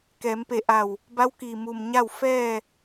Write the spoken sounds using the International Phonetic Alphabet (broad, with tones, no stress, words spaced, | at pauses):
kɛː˩˧mpe˧˩ʔa˧˩w | ba˧˥wkiː˩mu˩m ɲa˥˨w fɛː˥˨